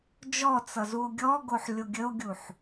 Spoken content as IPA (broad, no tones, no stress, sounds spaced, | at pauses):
d͡ʒ ɔ t͡s ʌ z u o̯ ɡʲ ɔ ɡ o ħ lʲ o ɡʲ ə o̯ ɡʲ u ħ